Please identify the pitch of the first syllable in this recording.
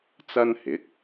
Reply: high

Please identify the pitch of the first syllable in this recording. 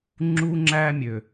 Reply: high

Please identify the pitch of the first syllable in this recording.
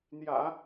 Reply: low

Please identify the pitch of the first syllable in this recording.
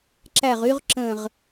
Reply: falling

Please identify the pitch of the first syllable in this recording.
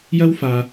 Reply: high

